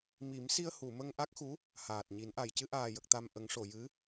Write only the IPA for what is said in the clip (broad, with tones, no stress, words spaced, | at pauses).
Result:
mi˨˩˦msi˧ə̯hu˨˩˨ mə˧ŋʔa˦˥k̚xu˧˥ | haː˨˩t̚ɲi˨˩˦nʔa˨˩j cɨ˧ʔaː˨˩jə˨˩k̚t̪a˨˩m ʔə˨˩˦ŋʂo˨˩˨jɨ˧˥